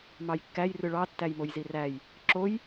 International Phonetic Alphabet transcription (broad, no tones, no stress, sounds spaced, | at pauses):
m ɑ j kː æ j r ɯ ɭ ɑ tː æ j m o j z i r æ j | ǁ o j